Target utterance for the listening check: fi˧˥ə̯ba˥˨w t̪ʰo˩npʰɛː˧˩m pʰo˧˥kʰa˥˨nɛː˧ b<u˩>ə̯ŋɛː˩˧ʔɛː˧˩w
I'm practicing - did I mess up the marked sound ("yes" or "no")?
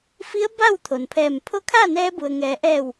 no